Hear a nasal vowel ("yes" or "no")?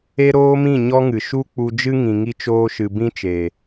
yes